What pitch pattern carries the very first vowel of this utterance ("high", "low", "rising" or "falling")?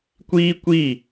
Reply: high